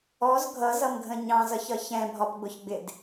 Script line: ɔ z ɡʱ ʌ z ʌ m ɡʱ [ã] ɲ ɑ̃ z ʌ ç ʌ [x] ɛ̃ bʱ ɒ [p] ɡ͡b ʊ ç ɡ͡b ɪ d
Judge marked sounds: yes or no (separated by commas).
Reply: no, no, yes